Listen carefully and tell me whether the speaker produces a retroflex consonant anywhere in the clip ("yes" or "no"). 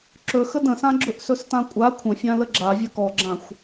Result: no